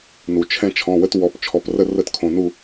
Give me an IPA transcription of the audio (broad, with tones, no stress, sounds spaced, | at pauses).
n u˩ t͡ʃʰ ɛ̃˦ t͡ʃʰ ɔ̃˩˧˩ w ə˦ t w ɔ˩˧˩ p t͡ʃʰ ɔ˩˧˩ p r ə˥˨ r ə˥˨ t kʰ õ˩˧˩ n u˥˨